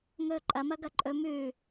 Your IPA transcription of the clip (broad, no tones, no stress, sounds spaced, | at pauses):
ŋ ɵː ǃʼ ɐ m ɐ ɡ ɐ ǃʼ ɵ m ʉ